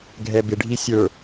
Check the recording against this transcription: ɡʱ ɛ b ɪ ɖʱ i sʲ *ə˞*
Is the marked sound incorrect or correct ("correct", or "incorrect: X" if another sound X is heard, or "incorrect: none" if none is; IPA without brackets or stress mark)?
correct